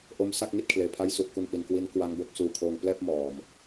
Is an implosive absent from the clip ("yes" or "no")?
yes